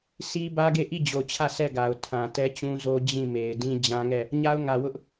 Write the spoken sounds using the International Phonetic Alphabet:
s i˦ b ä˦ ɡ e˦˨ ʔ i˦˨ d͡ʑ o˨ t͡ɕʰ ä˦˨ s ɛ˦˨ ɡ a˨ ʊ̯ tʰ ã˨ t ɛ˦ t͡ɕ ũ˦ z o˦ d͡ʑ ĩ˦˨ m e˨ ɪ̯ d ĩ˦ d͡ʑ ã˦ ŋ ɛ˦˨ | ɲ a˦ ʊ̯ ŋ ä˨ w ʊ˦ ʔ

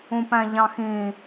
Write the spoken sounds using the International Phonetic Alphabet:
ũ p æ̃ ʎ ɑ̃ x ĩ

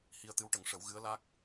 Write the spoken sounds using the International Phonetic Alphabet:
h i˧ ə̯ t̪ ɨ˧˥ w ʈ ə˨˩˦ ŋ ʂ ə˨˩˦ w ɣ ɨ˧˥ ə̯ l a˦˥ k̚

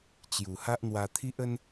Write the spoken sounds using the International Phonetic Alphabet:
t͡ɕ j u˨˩ h a˦ ʔ n̪ w a˧ t̪ʰ i˦ ʔ ə˦ n

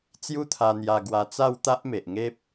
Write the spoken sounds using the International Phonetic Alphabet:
t͡s j u˦ t̪ʰ a˧ n̪ j a˧ ɡ w a˧ t͡s a˥˧ w t̪ a˦ ʔ m e˨ ʔ ŋ e˦ p̚

